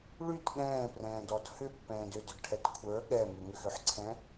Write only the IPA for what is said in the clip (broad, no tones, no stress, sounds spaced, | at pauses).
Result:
ɭ y t ɠ ɛ̃ː p r ɛ̃ː d ɔ d h ʏ pː ɛ̃ː d ʏ d ʏ d ʈʰ ɛ t kʷʰ ə˞ ɠ ɛ m ʏ ŋ ʏ x ʏ ħ ǀʰ ɛ̃